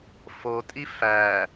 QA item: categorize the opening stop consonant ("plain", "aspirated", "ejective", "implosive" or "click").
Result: ejective